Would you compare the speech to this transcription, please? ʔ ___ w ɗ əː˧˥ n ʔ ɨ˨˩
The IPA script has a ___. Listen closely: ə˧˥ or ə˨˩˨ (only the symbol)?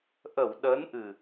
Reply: ə˨˩˨